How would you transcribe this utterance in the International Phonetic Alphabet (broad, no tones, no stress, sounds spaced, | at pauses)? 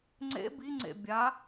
ŋ͡ǀ ḛ b i ŋ͡ǀ ḛ bʲ a